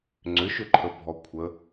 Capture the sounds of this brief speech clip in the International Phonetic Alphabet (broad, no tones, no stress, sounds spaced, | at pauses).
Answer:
ŋ͡ǀ ʏ ʃ ʏ ǃʰ ə bʱ ɔ kʷʰ ə